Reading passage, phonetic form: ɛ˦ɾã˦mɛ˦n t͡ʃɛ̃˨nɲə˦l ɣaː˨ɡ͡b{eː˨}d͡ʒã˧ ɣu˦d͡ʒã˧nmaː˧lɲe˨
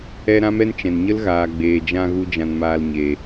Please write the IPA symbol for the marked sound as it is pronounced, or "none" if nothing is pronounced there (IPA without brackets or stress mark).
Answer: eː˨